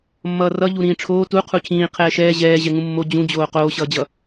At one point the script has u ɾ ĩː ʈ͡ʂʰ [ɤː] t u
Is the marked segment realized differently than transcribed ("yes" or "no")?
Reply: yes